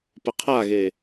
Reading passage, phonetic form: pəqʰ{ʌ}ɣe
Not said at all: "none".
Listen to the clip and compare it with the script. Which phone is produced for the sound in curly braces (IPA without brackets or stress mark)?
a